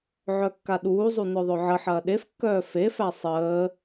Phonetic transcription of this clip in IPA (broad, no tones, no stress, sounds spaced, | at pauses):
ʕ œ kː a ɗ uː zˤ u n œ ðˤ ɵ ʕ ə ħ ɐː ɗ e f kː œː f e f æ sˤ əː